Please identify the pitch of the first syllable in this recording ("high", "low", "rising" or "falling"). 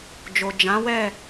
low